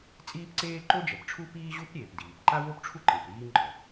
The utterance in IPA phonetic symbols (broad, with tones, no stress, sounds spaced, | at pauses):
t͡sʼ iː˥ p ǀ eː˥ ǃ o˥ d͡ʒ ɛ˩ p ʈ͡ʂʰ u˥ p iː˥ ʑ u˥ p ɾʲ eː˩ p d iː˩ p ǃ a˥ w o˥ p ʈ͡ʂʰ u˥ ǃ e˩ p ɾ iː˥ ŋ͡ǃ ɔ˩